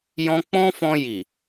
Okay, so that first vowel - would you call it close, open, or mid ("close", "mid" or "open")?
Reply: mid